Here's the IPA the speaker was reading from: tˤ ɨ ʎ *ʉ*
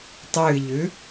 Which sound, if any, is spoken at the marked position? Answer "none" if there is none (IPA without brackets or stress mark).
ʉ